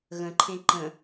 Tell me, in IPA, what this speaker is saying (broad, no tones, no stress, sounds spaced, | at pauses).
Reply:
ɣ ə̃ ǃʰ ẽ ǃ ə̃